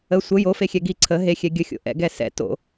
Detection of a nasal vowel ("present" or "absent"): absent